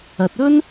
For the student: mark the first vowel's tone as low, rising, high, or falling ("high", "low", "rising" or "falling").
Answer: low